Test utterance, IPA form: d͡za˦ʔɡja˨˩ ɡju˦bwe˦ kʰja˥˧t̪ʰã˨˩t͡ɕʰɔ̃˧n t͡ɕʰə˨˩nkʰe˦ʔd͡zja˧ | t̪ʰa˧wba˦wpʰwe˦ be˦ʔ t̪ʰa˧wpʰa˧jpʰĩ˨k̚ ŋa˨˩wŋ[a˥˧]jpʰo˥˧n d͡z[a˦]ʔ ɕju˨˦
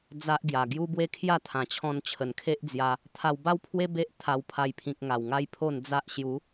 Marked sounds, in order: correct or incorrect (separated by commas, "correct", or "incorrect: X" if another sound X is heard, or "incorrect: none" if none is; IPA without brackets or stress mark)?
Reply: incorrect: a˦, correct